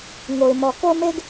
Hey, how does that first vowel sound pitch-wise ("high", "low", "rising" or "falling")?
low